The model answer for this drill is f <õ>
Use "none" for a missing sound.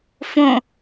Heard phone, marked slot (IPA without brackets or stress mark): õ